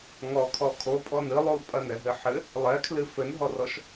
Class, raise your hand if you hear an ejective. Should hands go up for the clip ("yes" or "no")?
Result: yes